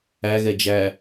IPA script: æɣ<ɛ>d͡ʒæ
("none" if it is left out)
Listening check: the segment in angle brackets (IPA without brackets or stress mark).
ɛ